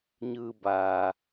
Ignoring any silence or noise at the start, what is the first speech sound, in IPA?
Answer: ɲ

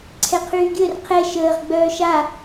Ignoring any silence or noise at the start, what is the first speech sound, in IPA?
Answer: ǀʰ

